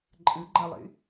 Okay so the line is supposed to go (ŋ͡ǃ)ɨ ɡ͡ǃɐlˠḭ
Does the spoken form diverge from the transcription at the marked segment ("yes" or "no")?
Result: yes